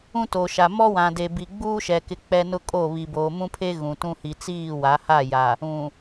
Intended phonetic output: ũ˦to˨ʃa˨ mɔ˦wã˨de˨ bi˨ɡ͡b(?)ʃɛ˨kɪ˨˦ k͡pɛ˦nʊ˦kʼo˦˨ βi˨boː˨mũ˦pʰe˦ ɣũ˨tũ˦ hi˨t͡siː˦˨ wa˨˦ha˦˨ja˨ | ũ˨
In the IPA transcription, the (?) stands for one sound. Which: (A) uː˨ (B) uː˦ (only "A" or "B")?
B